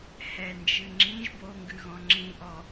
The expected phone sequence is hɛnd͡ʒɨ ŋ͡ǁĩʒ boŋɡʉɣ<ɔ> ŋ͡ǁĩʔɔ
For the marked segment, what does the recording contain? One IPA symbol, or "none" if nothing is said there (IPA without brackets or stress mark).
ɔ̃